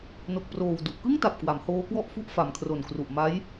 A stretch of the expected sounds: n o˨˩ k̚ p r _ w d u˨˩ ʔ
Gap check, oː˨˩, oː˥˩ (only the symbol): oː˨˩